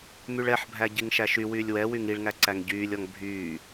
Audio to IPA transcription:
myɭɛħbʱæ ɟiŋʃæʃywyːlʲ wɛwyŋ iɭŋæ ǀæŋɟyːlʲɔŋ bʱyː

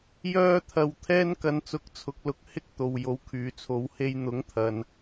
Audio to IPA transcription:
jœː˥ t̪ʰɐ˧wt̪ʰɛː˥n kɐ˧nt͡sʊ˨˥k̚t͡sʰʊ˨˥k̚ lʊ˨˥k̚hɪ˥k̚ t̪o˨wjo˨˥w kʰyː˨t͡sʰo˨˧w he˧jn̪ʊ˨˥ŋ t̪ʰɐ˧n

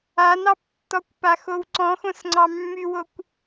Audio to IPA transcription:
anɑptːɔkʷ paxowǀɔ̃ xõsŋ͡ǀɑmːywokʷ

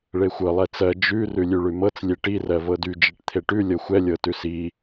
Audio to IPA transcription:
ɭexʷɤ lˠɛt͡sɜ d͡ʒʉ rʉlʲʉɭʉmɤt͡s lʲeʈi rɜvɤdy d͡ʒiʈt̪ʰeʈʉ lʲɤxʷɛ lʲɤtʉsi

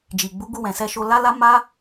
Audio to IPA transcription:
d͡ʒi˨ɡ͡bu˨˦ɡu˧ wɛ̃˨sɛ˧ʃo˧ la˦ la˦ma˦

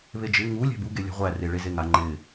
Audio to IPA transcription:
βed͡ʒɪ ŋu lʲæ̤buɡe lʲa̤ʁʷære ɭezeŋa ŋ͡ǃɪ

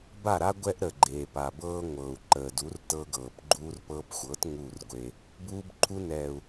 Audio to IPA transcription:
ba˦˨ɾa˦ ɡʷɛ˦ʔɾə˨ ɡ͡ǃeː˨pa˨bɤː˦ ŋʷɤː˨u̯ ǃəː˨du˨˦rtɤ˧ɡɤː˨p ɡ͡ǃuː˧rpɤː˧pxʷɤ˨˦t ŋuː˦˨rɡʷe˧ | buː˧bǃʰu˧nɛː˨u̯

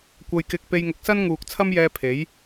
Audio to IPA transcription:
kʷɐ˧jkɪ˧k̚ pe˧jŋʊ˨˥k̚ sɐ˥nŋuː˨k̚t͡sʰɐ˥mjɛː˧ pʰe˨˥j

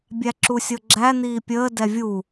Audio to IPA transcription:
bʲæǁusʲɤɡ͡ǁæ n̪iːpʲəː dɛvʲu

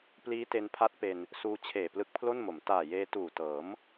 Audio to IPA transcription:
pliː˦˥te˧npʰa˦˥t̚pe˧n | suː˧t͡ɕʰeː˨˩ plɯ˦˥k̚pʰlo˥˩nmo˩˦m taː˨˩jeː˧tuː˨˩ tɤː˩˦m

